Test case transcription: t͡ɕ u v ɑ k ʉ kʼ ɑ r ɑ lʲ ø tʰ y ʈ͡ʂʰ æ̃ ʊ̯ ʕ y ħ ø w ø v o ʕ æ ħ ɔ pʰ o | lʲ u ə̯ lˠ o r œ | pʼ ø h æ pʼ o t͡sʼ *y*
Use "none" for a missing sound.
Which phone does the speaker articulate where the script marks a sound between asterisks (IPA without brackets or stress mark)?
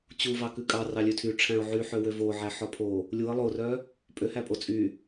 y